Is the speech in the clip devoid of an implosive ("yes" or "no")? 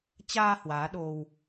no